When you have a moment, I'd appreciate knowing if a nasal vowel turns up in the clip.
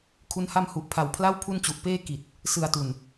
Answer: no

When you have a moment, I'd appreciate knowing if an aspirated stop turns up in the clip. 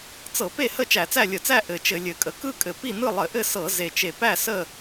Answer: no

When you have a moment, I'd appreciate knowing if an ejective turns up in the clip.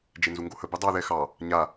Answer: no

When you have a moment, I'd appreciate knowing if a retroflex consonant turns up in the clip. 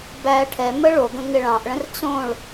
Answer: yes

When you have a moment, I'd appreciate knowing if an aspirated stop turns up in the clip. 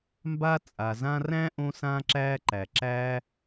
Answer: no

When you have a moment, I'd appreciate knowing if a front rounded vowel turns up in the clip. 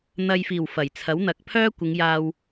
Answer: yes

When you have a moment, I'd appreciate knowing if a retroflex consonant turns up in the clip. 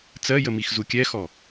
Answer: no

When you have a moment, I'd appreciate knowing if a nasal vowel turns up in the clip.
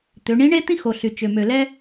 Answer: yes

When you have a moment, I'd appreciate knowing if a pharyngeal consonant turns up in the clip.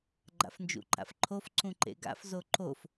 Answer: no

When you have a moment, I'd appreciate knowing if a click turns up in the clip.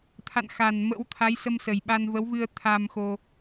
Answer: no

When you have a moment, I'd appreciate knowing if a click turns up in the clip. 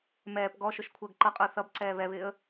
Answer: yes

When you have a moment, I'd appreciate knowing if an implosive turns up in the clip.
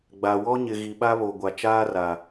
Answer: yes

